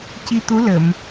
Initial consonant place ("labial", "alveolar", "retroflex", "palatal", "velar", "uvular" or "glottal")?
palatal